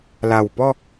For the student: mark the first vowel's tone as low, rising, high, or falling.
low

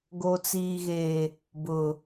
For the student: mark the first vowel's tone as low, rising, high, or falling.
low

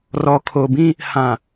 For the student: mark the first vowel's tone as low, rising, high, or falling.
low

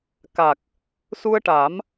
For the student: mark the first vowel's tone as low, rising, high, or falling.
low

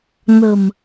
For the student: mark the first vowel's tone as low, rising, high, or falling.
low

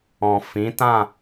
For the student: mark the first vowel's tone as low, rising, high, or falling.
low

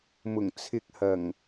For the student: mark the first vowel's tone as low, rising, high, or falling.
low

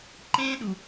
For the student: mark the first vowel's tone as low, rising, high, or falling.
high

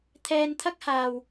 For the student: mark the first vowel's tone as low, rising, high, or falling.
high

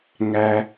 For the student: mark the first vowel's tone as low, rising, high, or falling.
low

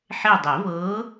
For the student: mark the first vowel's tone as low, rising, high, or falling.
falling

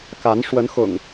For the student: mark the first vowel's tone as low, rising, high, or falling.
rising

